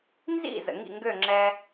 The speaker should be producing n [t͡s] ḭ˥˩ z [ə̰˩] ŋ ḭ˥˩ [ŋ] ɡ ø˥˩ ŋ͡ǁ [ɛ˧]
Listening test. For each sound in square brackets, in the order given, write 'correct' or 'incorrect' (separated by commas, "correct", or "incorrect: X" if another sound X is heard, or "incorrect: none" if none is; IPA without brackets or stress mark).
incorrect: z, correct, correct, correct